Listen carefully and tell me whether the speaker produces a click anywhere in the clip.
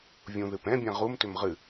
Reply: no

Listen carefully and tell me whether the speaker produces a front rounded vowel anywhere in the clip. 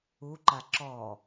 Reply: no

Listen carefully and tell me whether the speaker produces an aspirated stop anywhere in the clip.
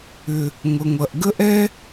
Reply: no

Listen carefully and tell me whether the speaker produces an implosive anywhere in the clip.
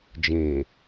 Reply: no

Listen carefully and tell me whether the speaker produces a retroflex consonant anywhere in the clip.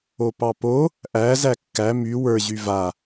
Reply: no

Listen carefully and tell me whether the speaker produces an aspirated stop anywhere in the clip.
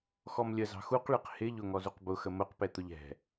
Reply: no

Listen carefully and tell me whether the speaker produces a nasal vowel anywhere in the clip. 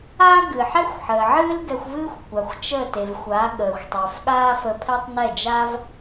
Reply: no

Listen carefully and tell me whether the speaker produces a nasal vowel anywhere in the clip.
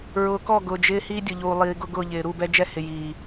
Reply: no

